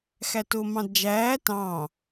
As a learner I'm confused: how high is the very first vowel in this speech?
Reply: low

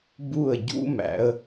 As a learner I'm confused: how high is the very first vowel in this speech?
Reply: high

